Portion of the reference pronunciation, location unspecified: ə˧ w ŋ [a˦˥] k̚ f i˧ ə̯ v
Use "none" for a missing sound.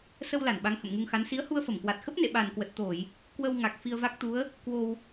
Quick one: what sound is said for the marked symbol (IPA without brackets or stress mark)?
a˨˩